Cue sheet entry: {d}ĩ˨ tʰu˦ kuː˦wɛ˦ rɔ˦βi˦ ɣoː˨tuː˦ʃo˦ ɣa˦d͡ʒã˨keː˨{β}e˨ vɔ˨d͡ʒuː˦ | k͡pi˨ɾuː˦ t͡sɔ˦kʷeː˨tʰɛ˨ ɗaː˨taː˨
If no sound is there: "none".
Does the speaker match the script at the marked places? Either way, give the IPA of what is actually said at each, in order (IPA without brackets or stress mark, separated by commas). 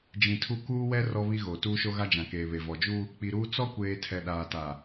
d͡ʒ, β